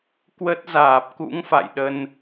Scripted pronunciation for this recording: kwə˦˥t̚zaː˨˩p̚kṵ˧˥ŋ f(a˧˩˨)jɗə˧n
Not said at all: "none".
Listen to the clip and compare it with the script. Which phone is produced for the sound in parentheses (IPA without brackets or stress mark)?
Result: a̰˧˨